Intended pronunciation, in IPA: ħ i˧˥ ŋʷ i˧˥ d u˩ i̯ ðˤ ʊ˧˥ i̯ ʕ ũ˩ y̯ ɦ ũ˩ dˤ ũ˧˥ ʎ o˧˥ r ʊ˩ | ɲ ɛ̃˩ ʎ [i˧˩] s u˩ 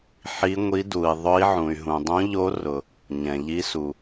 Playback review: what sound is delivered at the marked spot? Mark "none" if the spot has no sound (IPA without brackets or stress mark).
i˧˥